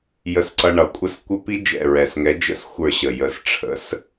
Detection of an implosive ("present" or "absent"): absent